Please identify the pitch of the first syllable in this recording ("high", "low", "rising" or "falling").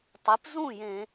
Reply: rising